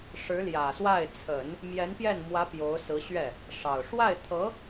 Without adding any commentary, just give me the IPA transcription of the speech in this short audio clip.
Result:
ʂɻ̩˧˥ljä˨˩swa˥˩ɪ̯ t͡sʰə˨˩˦n | mjɛ˧˥npjɛ˥˩nmwä˧˥ pjo˧˥ʊ̯sɹ̩˧˥ɕɥɛ˥˩ | ʂɑ˨˩ʊ̯ ʂwa˥˩ɪ̯t̪ʰɤ˧˥

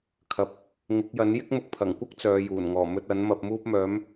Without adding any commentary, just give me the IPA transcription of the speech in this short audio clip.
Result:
kʰɐ˨p̚ | ŋɪ˨˥k̚jɐ˨˥n jɪ˥k̚mʊ˧k̚pʰɐ˨˩ŋkʷɐ˥k̚ t͡sœː˨˧juː˨˩nŋɔː˨˩ mɵ˧t̚ɐ˨˥n mɐ˧p̚muː˥p̚mœː˨˥m

